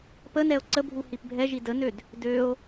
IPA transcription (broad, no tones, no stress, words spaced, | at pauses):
pənɛo̯ ǀəbʱu hipbʱɛʒi dənød | døo̯